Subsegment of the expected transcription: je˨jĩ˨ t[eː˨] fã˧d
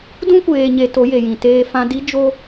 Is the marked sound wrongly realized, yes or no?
yes